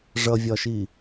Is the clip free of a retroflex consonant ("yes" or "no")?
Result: no